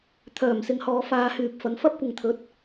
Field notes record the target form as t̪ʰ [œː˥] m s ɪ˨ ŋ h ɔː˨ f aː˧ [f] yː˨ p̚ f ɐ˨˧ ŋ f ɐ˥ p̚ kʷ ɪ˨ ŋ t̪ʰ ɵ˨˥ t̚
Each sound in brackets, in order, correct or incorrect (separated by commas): incorrect, incorrect